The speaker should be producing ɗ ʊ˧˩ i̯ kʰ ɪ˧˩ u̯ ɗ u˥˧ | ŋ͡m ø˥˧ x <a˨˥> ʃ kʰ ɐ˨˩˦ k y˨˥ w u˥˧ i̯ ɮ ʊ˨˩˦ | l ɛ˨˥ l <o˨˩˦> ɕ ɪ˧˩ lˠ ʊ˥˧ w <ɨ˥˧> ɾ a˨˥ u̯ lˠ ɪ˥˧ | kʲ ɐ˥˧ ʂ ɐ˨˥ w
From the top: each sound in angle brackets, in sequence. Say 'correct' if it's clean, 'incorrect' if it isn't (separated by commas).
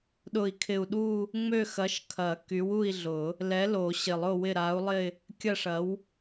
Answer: incorrect, correct, incorrect